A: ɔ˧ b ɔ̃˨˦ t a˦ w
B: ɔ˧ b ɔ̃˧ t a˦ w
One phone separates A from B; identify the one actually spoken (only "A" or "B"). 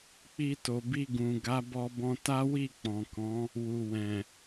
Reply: B